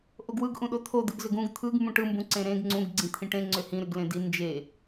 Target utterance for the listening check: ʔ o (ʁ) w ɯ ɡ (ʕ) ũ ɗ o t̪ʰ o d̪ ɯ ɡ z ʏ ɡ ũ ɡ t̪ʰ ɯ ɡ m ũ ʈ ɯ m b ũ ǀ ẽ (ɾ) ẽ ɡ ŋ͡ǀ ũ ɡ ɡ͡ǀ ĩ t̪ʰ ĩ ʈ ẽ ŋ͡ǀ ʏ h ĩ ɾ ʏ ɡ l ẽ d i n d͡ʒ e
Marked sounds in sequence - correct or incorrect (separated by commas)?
incorrect, incorrect, correct